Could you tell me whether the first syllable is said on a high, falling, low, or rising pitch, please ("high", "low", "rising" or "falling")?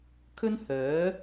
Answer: high